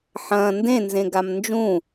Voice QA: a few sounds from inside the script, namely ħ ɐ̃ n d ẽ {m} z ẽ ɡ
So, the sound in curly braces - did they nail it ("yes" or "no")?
no